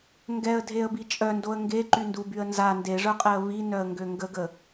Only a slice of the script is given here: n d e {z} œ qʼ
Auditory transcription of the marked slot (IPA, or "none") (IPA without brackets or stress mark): ʐ